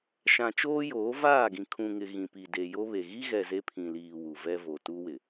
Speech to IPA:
ʃã˨t͡ʃoː˦joː˨˦ vaː˦˨ɡĩ˨kʰũ˨ŋɪ˨ ɣĩ˨pi˨ de˨jo˦βe˨ ɣi˦ɣɛ˨ ze˦pʰĩ˨liː˨ wu˨vɛ˦vo˨ tu˦wɪ˨

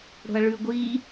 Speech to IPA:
ɽo̤ɐ̯ɭʉ ɡʷi

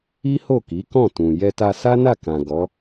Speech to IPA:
i˦ho˦˨ki˨˦kɔ̃˦˨ tũ˨ jɛ˧ta˧ sa˦na˦˨kã˨ ɡɔ˨˦

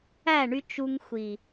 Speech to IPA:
æ˦˨ɳy˧ t͡ʃu˧ŋxʷi˨

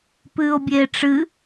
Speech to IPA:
pɨːo̯bʲeːʈ͡ʂɨ

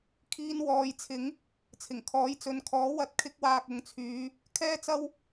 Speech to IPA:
kʰiː˧nwɔː˨˧jt͡sʰɪ˨˥ŋ | t͡sʰɪ˨˩ŋkʰɔː˨˥jt͡sɵ˨˥nkʰɔː˨˥ wɐ˨˥t̚kʰɪ˧k̚waː˨k̚ ʊ˨˧ŋt͡sʰyː˨˧ | kʰɛː˥t͡sɐ˥w

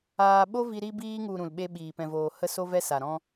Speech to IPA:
aː˧ ɓo˦vi˧ ɾi˧biː˧ŋu˨ ɾũ˨lɓe˦ɓiː˨ pɛ̃˨voː˨ hə˦so˦vɛ˦sa˨ ɾɔ̃˧

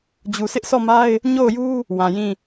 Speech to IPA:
d͡ʑu˨sʰɪ˦ʔsɔ˦˨ma˦ɪ̯ | ɲo˦˨ʊ̯ju˦ | wã˨jĩ˦˨

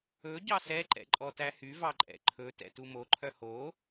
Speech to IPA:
ɵ ɟɑsɛ ǃɛ̰ǃʼɔtæhy vɑǃʼɛ̰ǃʰɵ tɛ̰tumo ǃʰœho

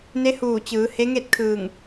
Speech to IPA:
ne˧˥huː˧˩ t͡ɕɯː˩˧ he˧˥ŋe˥˨t̚ kʰɯː˧˩ŋ

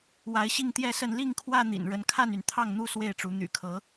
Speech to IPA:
wa˨˦ɪ̯ɕi˥˨ŋt̪jɛ˥˨sə˥˨n li˥˨ŋkʰwä˥˨n̪ḭ˨˩n ɻə˨˦nkʰa˥˨ny˩n t̪ʰɑ˥˨ŋn̪u˦ swe˥˨ɪ̯ʈ͡ʂu˨˦ n̪y̰˨˩kʰɤ˨˦

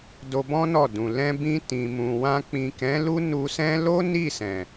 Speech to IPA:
do˧bɔ̃˦ nɔ˦˨dũ˨ lɛ̃˧bĩ˧ tĩ˨mũ˨wã˧ k͡pĩ˨kɛ̃˨˦ lu˦nu˧sɛ̃˦ lo˦ ni˦˨sɛ̃˨

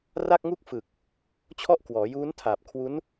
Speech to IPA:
ra˥˩k̚ŋu˥˩k̚ fɯ˨˩k̚ | t͡ɕʰɔ˥˩ʔ kwɔː˩˦juː˦˥n tʰaː˨˩p̚kʰwu˦˥n

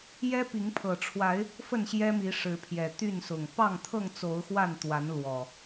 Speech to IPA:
jɛ˦pi˨˦ŋ pʰɤ˨˩ʈ͡ʂʰwa˨˦ɪ̯ | fə˥˨nɕjɛ˦mi˨˦ ʂɻ̩˨˦pʰjɛ˨˩ t̪y˥˨nsʊ˨˩ŋ pɑ˥˨ŋt̪ʰɤ˥˨ŋt͡so˨˦ʊ̯ xwa˥˨nt̪wa˨˦n lwɔ˨˩

